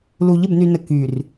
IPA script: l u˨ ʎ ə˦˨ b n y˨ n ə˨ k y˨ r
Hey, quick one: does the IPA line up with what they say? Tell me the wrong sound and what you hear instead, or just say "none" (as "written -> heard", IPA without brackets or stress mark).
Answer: none